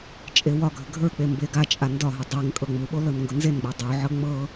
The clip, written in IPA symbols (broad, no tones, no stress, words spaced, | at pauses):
t͡ʃʼewɒɡʱə ɡʱə˞k͡pe mbeɡat͡ʃʼa ndɒɦʊ dˤeŋ kʼɤŋ͡muɓo lɤnŋɡʊnzenɡ͡bɤ dˤuʕɤ ŋ͡mɤ